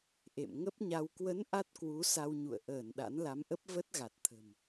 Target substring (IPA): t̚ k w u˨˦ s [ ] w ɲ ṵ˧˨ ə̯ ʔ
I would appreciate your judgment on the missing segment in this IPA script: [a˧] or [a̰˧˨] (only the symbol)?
a˧